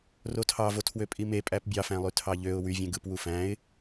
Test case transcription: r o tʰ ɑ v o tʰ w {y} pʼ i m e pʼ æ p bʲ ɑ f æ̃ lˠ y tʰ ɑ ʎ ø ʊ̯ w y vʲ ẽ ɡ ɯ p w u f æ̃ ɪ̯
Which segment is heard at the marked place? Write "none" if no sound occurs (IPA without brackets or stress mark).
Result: ø